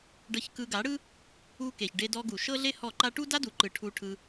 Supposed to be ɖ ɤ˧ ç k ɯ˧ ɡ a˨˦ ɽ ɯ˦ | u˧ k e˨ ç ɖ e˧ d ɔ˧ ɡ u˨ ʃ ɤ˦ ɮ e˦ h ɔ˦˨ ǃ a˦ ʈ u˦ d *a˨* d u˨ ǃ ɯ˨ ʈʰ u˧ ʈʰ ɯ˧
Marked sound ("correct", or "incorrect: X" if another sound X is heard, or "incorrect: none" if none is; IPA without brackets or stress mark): incorrect: a˦